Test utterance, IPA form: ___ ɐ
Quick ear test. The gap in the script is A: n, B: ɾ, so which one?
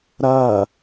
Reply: B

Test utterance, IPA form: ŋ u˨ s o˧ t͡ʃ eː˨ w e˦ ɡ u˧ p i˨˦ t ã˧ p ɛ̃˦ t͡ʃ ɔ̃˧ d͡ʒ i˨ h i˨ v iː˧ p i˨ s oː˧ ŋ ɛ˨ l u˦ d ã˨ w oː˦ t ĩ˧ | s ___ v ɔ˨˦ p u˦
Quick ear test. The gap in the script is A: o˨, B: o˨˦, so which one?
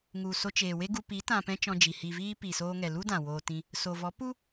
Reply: A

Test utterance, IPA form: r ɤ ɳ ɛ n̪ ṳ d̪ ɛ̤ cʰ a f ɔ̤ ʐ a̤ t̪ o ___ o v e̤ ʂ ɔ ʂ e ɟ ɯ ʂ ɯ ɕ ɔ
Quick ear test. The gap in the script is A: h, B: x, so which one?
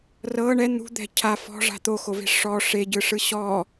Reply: B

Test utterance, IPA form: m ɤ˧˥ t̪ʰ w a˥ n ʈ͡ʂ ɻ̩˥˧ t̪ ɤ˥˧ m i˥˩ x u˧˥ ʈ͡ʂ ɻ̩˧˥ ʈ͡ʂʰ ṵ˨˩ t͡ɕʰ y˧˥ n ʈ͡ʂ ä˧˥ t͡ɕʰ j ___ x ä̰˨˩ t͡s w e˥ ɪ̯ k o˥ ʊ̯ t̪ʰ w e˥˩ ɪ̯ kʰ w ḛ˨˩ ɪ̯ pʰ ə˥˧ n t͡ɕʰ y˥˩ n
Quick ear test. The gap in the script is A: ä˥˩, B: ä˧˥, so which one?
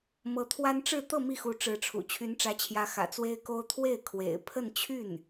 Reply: B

